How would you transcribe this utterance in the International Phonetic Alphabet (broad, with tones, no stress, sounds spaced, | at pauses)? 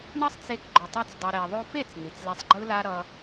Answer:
ɳ ʌ˦ sˤ t͡s e˧ k ɡ͡ǃ o˨ tˤ i˧ t͡s dˤ i˨ ɾ e˨ ðˤ o˧ f e˦˨ t͡s n̪ i˨ t͡s l e˧ sˤ ɡ͡ǃ ɯ˦ l a˦ ɾ ʌ˧